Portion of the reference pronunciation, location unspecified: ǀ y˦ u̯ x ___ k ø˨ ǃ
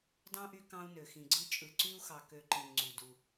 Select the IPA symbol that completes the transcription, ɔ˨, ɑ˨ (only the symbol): ɑ˨